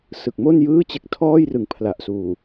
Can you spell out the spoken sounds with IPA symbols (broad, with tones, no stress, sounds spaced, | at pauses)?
s ɯ˨˩ k̚ m o˥˩ n j ɯː˥˩ t͡ɕ e˦˥ k̚ tʰ ɔː˥˩ j r ɯ˩˦ ŋ pʰ l a˨˩ ʔ s uː˨˩